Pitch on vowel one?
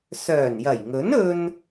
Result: low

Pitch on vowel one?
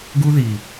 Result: high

